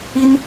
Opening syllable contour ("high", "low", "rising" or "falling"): high